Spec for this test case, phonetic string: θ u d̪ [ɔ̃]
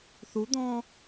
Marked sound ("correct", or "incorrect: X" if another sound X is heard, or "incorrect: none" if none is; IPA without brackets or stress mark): correct